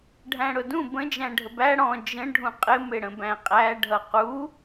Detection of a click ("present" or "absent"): absent